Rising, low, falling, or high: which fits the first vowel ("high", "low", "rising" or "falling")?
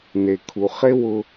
low